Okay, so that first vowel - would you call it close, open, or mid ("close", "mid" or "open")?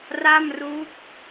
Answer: open